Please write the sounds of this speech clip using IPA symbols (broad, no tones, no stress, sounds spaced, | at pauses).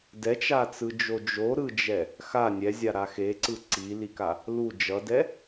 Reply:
d ɛ t͡ʃ a t͡s ɯ d͡ʒ o d͡ʒ o ɾ ɯ d͡ʒ ɛ | x a nʲ ɛ zʲ a ɾ a x e ǀ ɯ ǀ i l i k a | l u d͡ʒ ʌ d ɛ